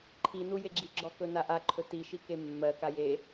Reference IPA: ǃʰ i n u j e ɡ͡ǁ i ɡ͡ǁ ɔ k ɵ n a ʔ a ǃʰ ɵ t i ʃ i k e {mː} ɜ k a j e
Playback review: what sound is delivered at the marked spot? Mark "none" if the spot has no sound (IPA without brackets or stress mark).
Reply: mː